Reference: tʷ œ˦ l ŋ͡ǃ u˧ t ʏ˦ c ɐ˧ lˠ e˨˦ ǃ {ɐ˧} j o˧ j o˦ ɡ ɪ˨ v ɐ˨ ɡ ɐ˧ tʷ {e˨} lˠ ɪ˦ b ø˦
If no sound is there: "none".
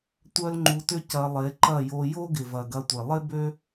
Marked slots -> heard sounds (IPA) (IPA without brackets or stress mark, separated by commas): ɐ˦˨, e˨